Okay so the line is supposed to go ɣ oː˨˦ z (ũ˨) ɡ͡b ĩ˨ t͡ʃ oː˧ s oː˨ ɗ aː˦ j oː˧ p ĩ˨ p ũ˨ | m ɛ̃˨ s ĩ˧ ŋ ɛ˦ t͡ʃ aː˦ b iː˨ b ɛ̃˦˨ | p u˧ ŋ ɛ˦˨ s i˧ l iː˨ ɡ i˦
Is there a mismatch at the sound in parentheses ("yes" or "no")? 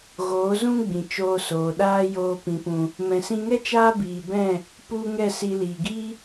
yes